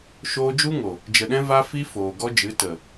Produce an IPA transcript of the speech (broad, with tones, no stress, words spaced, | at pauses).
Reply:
ʃoː˧d͡ʒu˦ŋo˨ | d͡ʒə˨ɗɛ̃˧ va˦fi˦foː˨ ɡɔ˧d͡ʒɨ˨˦tə˨